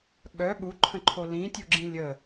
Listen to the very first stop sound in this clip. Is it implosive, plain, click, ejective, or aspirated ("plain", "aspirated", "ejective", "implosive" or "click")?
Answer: implosive